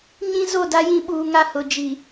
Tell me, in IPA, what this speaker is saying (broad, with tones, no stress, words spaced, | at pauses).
ɲĩ˦ zo˦˨da˦jĩ˦ ɓuː˨ŋa˦˨ hʊ˨ d͡ʒi˨